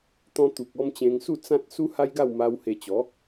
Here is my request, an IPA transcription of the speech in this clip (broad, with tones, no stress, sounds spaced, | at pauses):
t̪ ɔ̃˧ t̪ u˨ k̚ ɔ˧ m t͡ɕ ẽ˧ ŋ s u˥˧ t͡s ã˦ t̚ s u˦ h a˦ j ɡ a˥˧ w m a˧ w h e˧ t͡ɕ ɔ˨˦